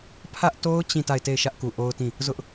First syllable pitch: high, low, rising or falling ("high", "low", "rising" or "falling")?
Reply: high